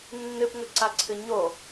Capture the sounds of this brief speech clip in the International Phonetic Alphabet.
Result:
nː ɨ p ŋ ɵ ǀ a ǀʰ ɨ ɲ o

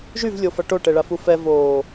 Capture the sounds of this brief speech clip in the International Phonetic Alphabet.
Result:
ʒ y v lʲ o f a ʈ o ʈ ɛ ɭ a f u f ɛ v oː

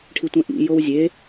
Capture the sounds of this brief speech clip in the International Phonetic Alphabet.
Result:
ʈʰ i tʷ ẽ ʔ ḭ j o w zʲ e

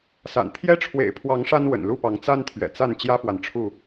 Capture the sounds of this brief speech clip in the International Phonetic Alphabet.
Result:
s a̰˨˩ n t̪ʰ j ɛ˦ ʈ͡ʂʰ w ḛ˨˩ ɪ̯ pʰ w ɑ˨˦ ŋ ʂ a˦ n w ə̰˨˩ n l u˥˨ p ɑ˨˦ ŋ t͡s a˦ n t̪ʰ ɥ ɛ̰˨˩ t͡s a˥˨ n t͡ɕ j ä˦ f w a˨ n ʈ͡ʂʰ u˥˨

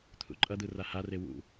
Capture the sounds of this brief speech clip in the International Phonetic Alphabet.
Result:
t̪ʰ ṵ ǃʼ ʌ d̪ ɯ r a h a r e w ṵ

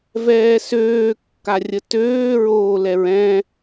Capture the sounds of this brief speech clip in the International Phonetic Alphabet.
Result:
v ɛː s øː kː a rʲ ə t øː ɹ oː l ɛ ɹ ɛ̃

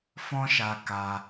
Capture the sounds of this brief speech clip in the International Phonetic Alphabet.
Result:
f ɔ̃˦ ʃ a˧ k a˧

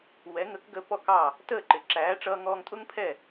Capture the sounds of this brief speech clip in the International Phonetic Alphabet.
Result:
w ɛ˩˥ ŋ ə˩˥ k ɡ ə˧ p ɔ˥˩ k ɑ˥˩ | t əː˥˩ ǃ ɪ˩ ǁ æː˩˥ ʈ͡ʂ ʌː˧ ŋ ɔː˧ ŋ tʼ ʊ˥ ŋ pʰ ɛ˥˩

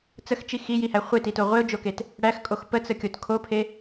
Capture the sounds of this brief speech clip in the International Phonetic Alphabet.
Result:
t͡s ə x t͡ʃ i x i j i h æ χʷ e t i t o ʁʷ e ʊ̯ d͡ʒ o k e t | ɽ æ x kʼ o x p ə t͡s ə kʲ o t kʰ o pʰ e

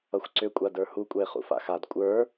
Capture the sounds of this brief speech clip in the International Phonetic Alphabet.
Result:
ʌ xʷ ǀ ʏ kʷʼ a d ə˞ h u kʷʼ ɛ e̯ χ ṵ f a̰ x a d kʷʼ ə˞

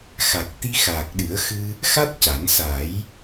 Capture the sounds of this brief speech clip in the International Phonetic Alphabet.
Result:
x a˨˩ k̚ t̪ i˧ x aː˨˩ k̚ ɗ ɨ˨˩˦ ə̯ x ɨ˧ | x a˦˥ t̚ c a˨˩˦ n s a˨˩˦ j

